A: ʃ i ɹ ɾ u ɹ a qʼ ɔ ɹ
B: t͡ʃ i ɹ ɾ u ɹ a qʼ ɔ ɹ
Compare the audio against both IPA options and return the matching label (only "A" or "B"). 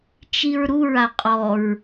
B